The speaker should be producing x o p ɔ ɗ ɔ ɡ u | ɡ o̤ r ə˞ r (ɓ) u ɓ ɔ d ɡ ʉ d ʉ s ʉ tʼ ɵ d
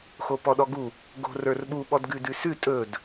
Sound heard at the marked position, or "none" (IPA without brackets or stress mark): ɓ